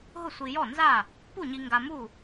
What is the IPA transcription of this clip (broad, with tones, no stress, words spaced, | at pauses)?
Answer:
ɦʊ˥˨sʷi˧jɔ˥˨nza˥˨ | pu˥˨ɲi˧ ŋɡa˧mu˥˨